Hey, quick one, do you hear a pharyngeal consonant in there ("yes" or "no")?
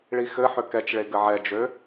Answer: yes